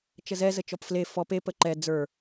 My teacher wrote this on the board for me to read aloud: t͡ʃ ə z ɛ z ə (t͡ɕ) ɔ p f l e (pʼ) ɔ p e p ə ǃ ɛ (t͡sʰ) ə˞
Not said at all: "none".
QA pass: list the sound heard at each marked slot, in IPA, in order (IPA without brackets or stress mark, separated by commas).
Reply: t͡ʃ, f, d͡z